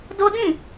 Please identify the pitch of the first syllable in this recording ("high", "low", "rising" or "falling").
high